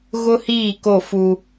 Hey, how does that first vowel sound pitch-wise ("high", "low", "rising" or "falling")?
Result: high